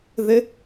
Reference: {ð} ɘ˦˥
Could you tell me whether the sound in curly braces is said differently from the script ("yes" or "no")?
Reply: no